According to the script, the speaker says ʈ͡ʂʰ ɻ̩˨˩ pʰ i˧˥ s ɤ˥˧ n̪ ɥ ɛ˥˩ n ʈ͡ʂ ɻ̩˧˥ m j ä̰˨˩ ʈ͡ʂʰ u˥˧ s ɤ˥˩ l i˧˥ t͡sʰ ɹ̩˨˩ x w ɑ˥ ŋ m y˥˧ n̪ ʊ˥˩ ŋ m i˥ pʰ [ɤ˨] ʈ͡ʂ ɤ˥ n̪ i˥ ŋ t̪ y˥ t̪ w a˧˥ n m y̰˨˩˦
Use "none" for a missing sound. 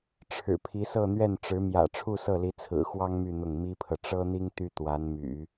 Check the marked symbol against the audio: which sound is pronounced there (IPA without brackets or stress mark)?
ɤ˨